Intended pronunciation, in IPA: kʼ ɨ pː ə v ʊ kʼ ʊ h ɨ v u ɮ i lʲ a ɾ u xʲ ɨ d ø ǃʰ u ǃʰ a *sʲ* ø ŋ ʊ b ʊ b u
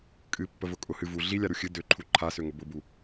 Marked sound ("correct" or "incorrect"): incorrect